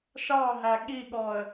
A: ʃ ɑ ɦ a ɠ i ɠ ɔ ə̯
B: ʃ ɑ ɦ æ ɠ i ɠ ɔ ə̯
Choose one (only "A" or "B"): B